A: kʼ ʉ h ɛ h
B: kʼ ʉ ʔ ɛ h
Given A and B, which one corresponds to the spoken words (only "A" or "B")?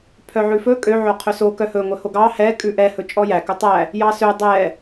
B